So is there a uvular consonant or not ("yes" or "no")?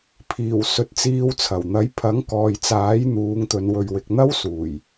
no